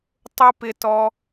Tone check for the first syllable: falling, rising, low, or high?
high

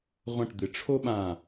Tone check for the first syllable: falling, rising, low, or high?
falling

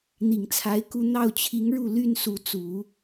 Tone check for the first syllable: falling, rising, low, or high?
low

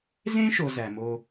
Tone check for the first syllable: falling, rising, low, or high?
high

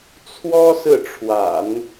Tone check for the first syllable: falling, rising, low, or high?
high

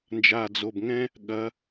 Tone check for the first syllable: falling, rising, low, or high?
low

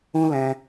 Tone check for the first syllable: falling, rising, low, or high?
high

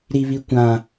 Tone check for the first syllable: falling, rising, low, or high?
low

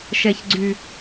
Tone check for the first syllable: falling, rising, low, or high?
low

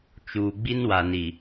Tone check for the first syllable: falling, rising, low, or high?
low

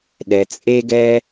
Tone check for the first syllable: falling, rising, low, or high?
low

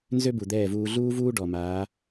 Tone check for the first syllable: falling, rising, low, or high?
high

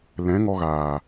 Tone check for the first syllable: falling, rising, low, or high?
rising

